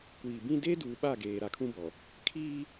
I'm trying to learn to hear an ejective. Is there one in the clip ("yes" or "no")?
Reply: no